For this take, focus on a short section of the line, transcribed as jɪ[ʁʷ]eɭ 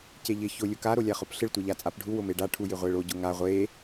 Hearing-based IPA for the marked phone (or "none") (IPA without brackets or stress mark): ʁʷ